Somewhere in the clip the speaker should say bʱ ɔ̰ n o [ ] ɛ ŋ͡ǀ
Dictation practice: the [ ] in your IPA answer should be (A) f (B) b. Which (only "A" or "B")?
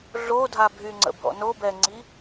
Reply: B